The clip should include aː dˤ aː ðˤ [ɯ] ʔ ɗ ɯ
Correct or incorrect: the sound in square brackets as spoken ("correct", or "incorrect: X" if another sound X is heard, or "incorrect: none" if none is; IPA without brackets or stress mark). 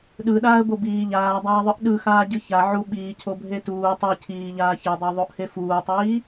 correct